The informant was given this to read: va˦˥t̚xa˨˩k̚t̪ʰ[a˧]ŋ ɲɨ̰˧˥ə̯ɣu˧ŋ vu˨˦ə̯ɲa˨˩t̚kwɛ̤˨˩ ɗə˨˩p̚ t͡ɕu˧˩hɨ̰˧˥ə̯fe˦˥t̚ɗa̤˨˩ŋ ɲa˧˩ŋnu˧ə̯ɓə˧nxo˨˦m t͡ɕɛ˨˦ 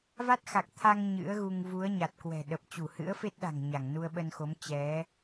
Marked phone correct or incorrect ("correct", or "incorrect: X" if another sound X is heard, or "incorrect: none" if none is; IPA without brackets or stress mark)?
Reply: correct